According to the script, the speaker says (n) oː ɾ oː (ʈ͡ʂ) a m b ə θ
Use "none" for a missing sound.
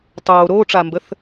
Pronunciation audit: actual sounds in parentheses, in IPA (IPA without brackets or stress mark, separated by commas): tˤ, ʈ͡ʂ